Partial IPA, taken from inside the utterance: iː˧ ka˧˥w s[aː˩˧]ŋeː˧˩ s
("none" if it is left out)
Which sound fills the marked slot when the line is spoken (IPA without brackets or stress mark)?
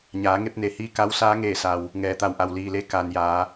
aː˧˥